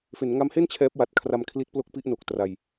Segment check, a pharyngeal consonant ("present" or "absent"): absent